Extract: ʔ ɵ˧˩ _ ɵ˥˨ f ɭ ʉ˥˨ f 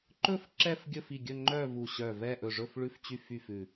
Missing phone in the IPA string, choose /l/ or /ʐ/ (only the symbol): ʐ